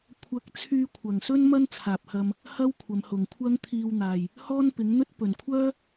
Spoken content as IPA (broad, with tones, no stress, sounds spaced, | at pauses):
kʷʰ ɐ˧ k̚ t͡sʰ yː˧ kʷʰ ɐ˨ ŋ s ɵ˥ n m ɐ˥ n t͡sʰ aː˨ p̚ h ɐ˧ m | h ɐ˥ w kʷʰ ɐ˨˧ m h ʊ˨ ŋ kʷʰ ɐ˥ ŋ t̪ʰ iː˧ w n̪ aː˨ j | h ɔː˥ n p ɪ˨˥ ŋ n̪ ɵ˥ t̚ p ɵ˨ n kʷʰ œː˥